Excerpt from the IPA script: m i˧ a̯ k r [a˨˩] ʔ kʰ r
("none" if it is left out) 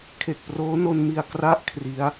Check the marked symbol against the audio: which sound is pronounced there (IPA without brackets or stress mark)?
a˥˩